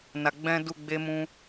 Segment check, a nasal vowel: present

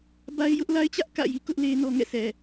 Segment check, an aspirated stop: absent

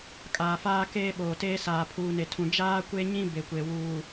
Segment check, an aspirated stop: present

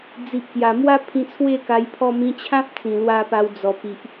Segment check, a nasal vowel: present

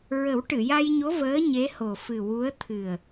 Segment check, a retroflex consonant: present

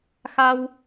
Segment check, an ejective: absent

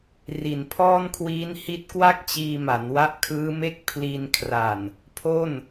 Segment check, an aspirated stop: present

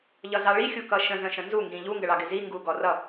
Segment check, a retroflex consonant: present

